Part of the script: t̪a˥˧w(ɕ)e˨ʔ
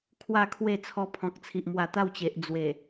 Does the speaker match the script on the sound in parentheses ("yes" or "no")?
no